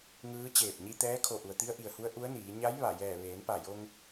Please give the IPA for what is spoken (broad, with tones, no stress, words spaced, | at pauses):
ŋɯː˧˥ t͡ɕeː˧˩p̚ɲi˧ t̪ɛː˧˥ kʰo˧˩ʔu˩ə̯t̪i˧˥ə̯ ʔi˩ə̯hu˧˥ə̯ ʔu˧˥ə̯niː˩˧ ɲa˧˥j ʋa˧˩ jɛː˧˩ ʋeː˩˧npa˧˩jo˧ŋ